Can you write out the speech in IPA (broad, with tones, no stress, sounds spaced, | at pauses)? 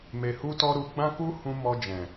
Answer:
m e˨ h u˧ t ɔ˧ ɾ u˧ ɡ͡b ã˦ k u˦ h ũ˧ m ɔ˧ d͡ʒ ɛ̃˨